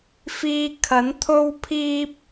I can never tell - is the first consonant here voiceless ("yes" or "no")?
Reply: yes